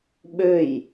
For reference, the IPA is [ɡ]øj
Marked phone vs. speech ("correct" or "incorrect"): incorrect